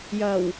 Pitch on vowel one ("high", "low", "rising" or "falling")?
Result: low